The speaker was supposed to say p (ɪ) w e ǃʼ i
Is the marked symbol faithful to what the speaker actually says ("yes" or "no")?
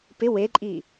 yes